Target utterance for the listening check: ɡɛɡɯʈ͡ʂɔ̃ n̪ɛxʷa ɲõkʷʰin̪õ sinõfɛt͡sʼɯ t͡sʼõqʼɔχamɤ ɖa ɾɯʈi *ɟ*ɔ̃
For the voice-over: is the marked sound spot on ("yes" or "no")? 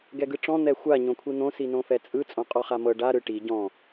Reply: yes